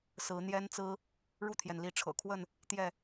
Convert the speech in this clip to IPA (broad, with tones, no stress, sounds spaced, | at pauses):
s ɹ̩˨˦ n̪ j ɛ˦ n t͡s ɹ̩˦ | ɻ u˥˨ t̪ʰ j ɛ˩ n l i˨˦ ʈ͡ʂʰ ɤ̰˨˩ kʰ w ə˥˨ n | t̪ j ɛ˥˨